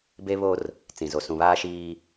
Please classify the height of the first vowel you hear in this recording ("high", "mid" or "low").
mid